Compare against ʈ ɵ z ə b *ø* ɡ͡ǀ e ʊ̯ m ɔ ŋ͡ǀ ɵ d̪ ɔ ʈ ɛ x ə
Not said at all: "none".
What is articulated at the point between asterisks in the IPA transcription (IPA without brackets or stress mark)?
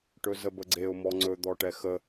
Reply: ə